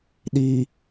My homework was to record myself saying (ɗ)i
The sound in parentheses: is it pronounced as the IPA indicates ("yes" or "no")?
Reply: yes